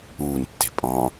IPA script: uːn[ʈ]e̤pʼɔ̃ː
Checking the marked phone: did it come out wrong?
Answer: yes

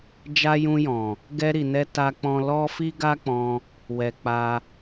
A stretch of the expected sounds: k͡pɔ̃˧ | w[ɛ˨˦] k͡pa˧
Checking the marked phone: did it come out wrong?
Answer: yes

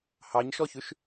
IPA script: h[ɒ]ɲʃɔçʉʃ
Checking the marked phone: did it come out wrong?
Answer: yes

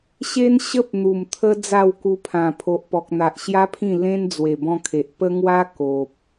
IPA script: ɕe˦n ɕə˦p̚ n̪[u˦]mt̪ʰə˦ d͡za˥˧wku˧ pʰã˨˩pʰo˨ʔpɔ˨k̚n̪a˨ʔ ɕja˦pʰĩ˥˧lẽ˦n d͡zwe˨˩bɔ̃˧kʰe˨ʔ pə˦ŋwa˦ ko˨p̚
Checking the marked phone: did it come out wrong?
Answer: yes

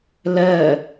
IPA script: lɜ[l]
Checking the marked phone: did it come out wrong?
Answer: yes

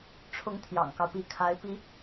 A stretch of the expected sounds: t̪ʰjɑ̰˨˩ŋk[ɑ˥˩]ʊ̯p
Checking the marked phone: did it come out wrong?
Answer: yes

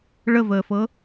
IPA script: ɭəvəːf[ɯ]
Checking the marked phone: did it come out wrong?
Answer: yes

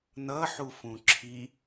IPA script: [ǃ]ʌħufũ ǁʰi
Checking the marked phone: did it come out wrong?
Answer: yes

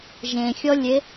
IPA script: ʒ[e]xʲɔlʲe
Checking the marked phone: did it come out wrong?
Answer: yes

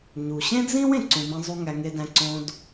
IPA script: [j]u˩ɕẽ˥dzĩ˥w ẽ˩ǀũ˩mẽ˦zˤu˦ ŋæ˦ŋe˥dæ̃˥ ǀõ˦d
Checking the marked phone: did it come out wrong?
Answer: yes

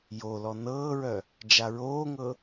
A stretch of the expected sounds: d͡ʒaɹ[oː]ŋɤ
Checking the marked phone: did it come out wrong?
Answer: no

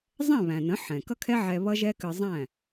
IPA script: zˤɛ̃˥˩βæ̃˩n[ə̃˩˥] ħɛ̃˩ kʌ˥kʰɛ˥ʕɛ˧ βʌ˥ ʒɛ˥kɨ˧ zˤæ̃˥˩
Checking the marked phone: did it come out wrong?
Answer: no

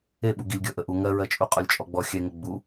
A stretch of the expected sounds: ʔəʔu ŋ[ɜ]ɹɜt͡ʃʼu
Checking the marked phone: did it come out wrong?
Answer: no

